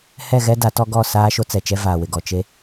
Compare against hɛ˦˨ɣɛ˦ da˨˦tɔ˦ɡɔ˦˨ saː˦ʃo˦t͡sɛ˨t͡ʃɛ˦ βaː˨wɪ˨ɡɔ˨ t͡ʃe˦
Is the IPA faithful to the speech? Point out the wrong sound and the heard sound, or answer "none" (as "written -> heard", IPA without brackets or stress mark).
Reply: β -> v